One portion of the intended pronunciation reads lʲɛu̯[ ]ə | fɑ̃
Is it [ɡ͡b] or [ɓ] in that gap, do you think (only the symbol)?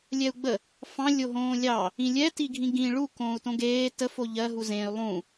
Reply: ɡ͡b